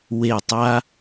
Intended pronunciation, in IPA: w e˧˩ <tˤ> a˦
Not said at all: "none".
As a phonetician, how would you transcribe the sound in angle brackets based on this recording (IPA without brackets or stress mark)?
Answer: tˤ